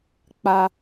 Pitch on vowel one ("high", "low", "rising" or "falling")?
low